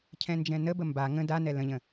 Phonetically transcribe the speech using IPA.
cʰ ɛ̃ n d͡ʒ ɛ̃ n ə b ə m b a ŋ ə̃ d a n ɛ l ə̃ ʎ ə̃

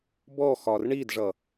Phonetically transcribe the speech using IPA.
b ɔ x ɒ r ɳ i d ʐ ʌ

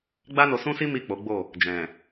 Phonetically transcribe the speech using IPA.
ɡ͡b a˦ n o˧ s ũ˦ s i˦ m i˦˨ k͡p o˨˦ ɡ͡b o˦˨ | d͡ʒ ɛ̃˨

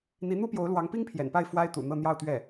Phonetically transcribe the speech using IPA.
n̪ i˧˥ n̪ u˥ p j o˧˥ ʊ̯ l w ɑ˧˥ ŋ p i˥ ŋ pʰ j ɛ̰˨˩ n p a˥˩ ɪ̯ f w a˥ ɪ̯ t̪ ṵ˨˩ n̪ ɤ˥˧ n̪ j ɑ˥˧ ʊ̯ t̪ ɥ ɛ˥˩

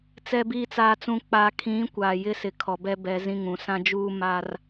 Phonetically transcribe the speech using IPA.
t͡s ɛ˨ b iː˨ t͡s aː˨ t͡s ũ˨ k͡p a˨ kʰ ĩ˨˦ kʷ aː˨ j ɪ˦ s ɪ˨ kʰ ɔ˨ b ɛ˦ b ɛ˨˦ z ĩ˦ ŋ ũ˨˦ s ã˦ d͡ʒ uː˦ m aː˦ r

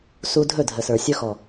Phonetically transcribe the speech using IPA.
s u˧ dʱ ɵ˦˨ dʱ ə˨ s ə˞˨ sʲ ɵ˧ x ɔ˨

